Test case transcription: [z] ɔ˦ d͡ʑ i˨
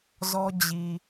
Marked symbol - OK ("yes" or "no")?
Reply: yes